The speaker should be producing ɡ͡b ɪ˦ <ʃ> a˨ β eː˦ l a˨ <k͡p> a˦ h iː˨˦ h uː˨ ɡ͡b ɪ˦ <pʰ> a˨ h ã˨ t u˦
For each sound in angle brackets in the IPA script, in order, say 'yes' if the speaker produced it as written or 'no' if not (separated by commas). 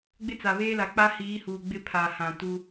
no, yes, yes